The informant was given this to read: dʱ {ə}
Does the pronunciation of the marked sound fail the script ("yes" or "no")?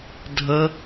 no